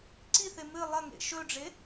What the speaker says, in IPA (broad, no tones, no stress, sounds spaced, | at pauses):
ǀ i θ e m ɨ lˠ ɐ ŋ ḛ ʃ ɵ ɖ͡ʐ e